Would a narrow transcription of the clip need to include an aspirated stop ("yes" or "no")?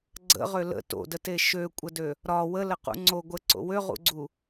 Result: no